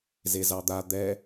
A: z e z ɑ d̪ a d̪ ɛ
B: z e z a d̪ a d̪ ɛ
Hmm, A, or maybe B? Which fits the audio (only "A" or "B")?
A